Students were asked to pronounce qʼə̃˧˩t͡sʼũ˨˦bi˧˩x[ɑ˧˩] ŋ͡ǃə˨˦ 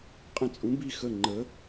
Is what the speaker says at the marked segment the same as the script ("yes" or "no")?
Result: no